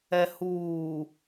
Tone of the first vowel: low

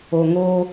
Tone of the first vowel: low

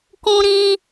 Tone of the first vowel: high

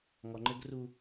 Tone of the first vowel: low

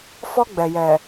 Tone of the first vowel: high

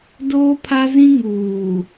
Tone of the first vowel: high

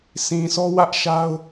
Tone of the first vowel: low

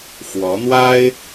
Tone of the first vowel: rising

